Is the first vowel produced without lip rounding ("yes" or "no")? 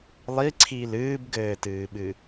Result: yes